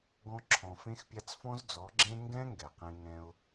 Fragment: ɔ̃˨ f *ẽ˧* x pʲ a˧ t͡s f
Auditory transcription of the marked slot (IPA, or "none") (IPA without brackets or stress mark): ẽ˦